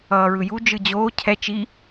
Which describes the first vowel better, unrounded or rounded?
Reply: unrounded